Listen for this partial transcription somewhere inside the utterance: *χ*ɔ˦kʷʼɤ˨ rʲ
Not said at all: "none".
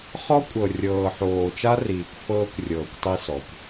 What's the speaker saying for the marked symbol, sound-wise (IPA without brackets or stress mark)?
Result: χ